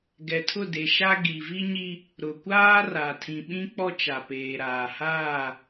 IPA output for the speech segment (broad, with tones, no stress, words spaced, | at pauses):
ɡɛ˨tʰʊ˦˨de˨ʃa˦ ɡi˨vi˦ɲi˦ | ɾʊ˨kʷaː˦ ra˨ tʰĩ˨ɓĩ˦k͡pɔ˦t͡ʃa˨ peː˨ɾaː˨ haː˦˨